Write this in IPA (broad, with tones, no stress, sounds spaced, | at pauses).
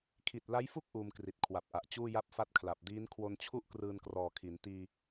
kʰ i˨˩ t̚ l a˦˥ j f u˥˩ k̚ ʔ uː˧ m k r i˨˩ t̚ kʰ w a˨˩ p̚ ʔ a˨˩ ʔ t͡ɕ uː˥˩ j a˥˩ p̚ f a˥˩ t̚ kʰ l a˨˩ p̚ d iː˦˥ n kʰ w o˧ n t͡ɕʰ u˥˩ ʔ k r ɯː˧ n k r ɔː˨˩ kʰ i˩˦ n t iː˧